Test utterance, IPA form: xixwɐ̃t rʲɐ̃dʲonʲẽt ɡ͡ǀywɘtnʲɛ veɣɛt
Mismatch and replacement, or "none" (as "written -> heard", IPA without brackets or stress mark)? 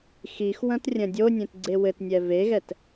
y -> e